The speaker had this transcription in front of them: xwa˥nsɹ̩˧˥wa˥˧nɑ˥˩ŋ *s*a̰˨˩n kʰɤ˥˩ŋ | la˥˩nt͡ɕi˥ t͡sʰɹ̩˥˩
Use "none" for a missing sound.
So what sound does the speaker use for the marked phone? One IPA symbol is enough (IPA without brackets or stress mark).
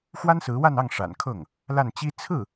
ʂ